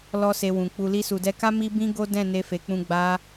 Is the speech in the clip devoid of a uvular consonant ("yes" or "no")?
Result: yes